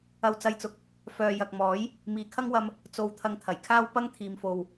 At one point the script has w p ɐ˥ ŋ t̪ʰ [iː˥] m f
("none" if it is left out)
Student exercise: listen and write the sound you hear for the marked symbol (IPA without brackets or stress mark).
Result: iː˨